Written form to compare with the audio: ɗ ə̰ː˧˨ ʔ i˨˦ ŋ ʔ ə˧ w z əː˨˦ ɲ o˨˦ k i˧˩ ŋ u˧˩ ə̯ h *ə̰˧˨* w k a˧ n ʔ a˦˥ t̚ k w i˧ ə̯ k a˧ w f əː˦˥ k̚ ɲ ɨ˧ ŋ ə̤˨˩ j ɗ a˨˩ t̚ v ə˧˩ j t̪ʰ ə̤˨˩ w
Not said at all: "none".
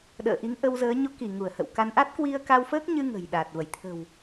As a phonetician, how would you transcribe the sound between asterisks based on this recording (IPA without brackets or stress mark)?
ə̰˧˨